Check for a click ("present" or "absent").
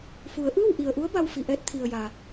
absent